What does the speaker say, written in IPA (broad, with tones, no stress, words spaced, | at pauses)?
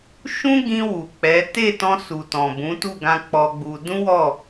ʃũ˦ɡĩ˧ wu˨k͡pɛ˨˦ te˦˨tɔ̃˧ su˨tɔ̃˨bũ˨˦ tu˦˨ɡã˧ k͡pɔ˧ɡ͡bu˧ dũ˦wɔ˦˨